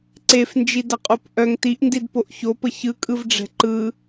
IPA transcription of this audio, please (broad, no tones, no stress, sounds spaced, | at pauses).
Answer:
ǀ e f n d͡ʒ i d ɐ qʼ o p ʔ œ ŋ t i ʔ n d i d p o ʔ ç o p ə ç ɯ kʼ ɯ v ɖ͡ʐ ɛ̤ ǃ ɯ